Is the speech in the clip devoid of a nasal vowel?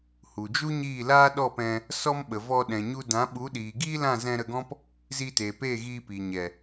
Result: no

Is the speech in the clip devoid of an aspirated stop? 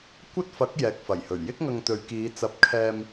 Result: no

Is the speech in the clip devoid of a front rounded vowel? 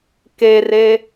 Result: yes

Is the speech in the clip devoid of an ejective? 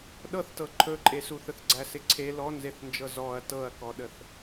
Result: no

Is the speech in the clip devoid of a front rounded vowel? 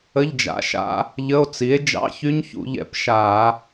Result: no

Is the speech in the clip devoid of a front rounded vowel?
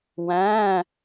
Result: yes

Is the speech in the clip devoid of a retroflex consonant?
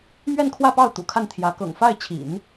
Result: yes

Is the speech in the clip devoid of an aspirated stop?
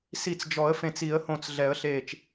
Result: yes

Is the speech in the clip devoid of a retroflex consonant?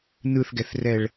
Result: no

